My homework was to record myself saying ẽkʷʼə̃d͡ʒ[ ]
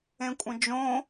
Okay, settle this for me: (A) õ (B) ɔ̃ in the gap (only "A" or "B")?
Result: A